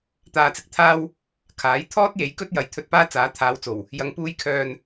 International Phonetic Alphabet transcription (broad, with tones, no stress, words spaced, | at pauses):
t̪aː˨t͡sɪ˨k̚t̪ʰaː˧w | kʰaː˨˥j t̪ʰɔː˥t̚je˨˥j kɵ˥t̚jɐ˨j t̪ʰɵ˧t̚paː˥t͡saː˨˥ t̪ʰaː˨˧wt͡so˨˩w | jɐ˨˧ŋpuː˧jkʰœː˨n